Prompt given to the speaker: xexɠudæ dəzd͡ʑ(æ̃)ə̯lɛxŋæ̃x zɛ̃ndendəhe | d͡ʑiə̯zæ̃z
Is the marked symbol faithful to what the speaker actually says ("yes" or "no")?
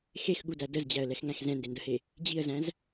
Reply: no